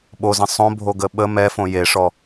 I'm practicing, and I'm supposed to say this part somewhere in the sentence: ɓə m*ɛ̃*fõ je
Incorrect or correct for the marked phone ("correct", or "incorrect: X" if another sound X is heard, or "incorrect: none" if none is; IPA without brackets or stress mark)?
incorrect: ɛ